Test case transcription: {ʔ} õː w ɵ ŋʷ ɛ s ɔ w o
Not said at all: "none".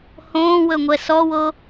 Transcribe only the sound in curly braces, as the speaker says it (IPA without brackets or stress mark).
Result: h